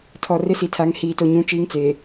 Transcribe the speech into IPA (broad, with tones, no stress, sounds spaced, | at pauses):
tʰ ɔ˨ r ɪ˦ s i˨ tʰ a˨˦ ŋ h iː˨ t o˨ ɲ ũ˦ t͡ʃ iː˦ ŋ t͡s eː˨